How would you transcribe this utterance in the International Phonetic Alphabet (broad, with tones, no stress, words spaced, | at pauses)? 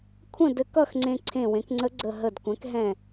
kʷʰə̃˥˨dɘ˧kʌ˥˨x ŋ͡ǀẽ˧ǀʰẽ˧˩wẽ˩˥kŋ͡ǀə˧˥ ɡ͡ǀə˧˩ɦə˧˩dkʷɛ̃˩˥k ɦɛ̃˧˩